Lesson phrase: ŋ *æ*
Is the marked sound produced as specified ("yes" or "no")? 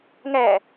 yes